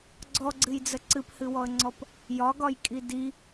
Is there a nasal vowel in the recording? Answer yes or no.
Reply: no